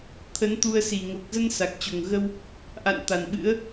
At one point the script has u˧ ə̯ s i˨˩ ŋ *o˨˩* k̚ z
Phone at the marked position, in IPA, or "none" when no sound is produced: o˨˩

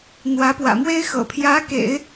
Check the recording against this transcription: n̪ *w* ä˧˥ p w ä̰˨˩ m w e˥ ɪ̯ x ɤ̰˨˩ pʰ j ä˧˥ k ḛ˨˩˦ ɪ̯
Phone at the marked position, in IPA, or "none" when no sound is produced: w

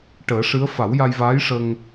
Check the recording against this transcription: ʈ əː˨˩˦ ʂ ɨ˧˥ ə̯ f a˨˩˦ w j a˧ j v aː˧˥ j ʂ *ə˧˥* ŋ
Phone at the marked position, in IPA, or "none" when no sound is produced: ə˧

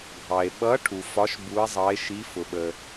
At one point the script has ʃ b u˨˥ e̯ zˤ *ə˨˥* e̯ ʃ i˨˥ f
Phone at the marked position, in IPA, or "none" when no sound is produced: ɑ˨˥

